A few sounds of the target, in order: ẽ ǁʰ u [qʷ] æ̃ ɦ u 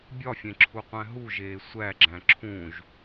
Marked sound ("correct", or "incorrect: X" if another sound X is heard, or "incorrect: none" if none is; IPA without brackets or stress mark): correct